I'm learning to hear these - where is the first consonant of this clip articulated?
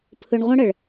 lips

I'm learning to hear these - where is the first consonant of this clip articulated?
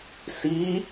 tongue tip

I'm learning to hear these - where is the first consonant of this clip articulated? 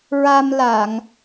tongue tip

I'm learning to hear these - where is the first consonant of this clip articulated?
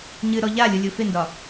palate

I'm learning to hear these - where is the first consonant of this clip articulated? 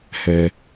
throat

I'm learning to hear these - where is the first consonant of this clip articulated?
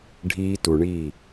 retroflex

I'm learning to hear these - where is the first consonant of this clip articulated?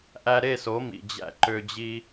throat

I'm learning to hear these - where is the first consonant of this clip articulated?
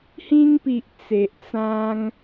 throat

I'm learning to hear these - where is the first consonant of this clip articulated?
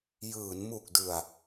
palate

